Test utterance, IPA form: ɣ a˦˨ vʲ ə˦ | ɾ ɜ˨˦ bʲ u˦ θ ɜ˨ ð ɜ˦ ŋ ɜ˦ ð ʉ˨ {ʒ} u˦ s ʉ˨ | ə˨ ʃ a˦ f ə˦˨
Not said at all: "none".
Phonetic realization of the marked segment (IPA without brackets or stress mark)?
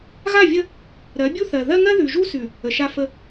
ʒ